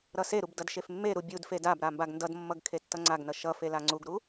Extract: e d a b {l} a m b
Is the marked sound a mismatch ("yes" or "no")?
yes